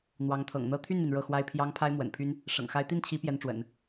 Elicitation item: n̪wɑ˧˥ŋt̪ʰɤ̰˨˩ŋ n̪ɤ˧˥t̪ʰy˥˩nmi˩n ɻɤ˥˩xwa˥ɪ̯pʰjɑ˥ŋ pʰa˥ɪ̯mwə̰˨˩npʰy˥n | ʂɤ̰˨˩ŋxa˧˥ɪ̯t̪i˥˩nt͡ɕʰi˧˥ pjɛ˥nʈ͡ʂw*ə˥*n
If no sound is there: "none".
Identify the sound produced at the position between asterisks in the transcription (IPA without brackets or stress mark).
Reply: ə̰˨˩˦